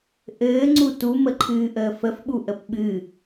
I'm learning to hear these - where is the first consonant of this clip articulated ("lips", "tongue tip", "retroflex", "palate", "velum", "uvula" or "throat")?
throat